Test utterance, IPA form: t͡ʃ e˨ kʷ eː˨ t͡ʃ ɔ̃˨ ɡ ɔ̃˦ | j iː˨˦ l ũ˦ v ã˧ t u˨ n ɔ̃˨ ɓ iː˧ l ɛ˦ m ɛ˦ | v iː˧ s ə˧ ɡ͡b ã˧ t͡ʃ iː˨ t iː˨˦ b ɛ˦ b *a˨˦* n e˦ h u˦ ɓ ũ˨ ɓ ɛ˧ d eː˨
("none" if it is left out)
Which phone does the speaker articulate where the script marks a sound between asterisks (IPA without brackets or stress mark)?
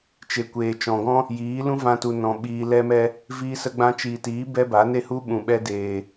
a˨˦